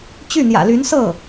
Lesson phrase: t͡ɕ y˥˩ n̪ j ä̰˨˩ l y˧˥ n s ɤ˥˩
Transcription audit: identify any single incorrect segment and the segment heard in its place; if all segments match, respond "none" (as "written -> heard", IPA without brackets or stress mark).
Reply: none